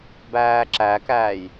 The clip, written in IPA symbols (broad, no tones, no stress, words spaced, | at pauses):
bæːǁækæːj